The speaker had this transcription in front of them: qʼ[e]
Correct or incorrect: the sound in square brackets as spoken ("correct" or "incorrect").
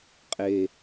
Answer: correct